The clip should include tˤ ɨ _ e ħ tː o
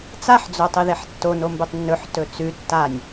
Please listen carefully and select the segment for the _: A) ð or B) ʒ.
A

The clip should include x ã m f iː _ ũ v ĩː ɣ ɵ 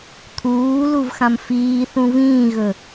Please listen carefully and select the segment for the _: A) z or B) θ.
B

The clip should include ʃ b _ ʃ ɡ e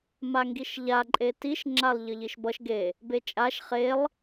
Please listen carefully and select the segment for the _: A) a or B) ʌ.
B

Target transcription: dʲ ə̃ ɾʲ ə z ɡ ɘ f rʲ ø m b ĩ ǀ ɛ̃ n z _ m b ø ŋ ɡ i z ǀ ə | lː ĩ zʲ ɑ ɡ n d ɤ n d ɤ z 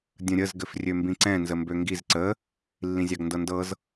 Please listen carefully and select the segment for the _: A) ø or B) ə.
B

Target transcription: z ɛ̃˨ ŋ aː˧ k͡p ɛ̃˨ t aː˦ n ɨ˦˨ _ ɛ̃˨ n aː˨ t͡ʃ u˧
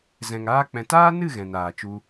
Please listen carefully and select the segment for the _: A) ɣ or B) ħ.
A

